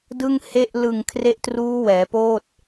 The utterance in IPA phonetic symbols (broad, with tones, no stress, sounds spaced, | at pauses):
d ɯ˥˩ ŋ h e˥˩ ʔ l ɯ˨˩ ŋ kʰ r e˦˥ ʔ t r uː˦˥ w ɛː˩˦ p oː˥˩ t̚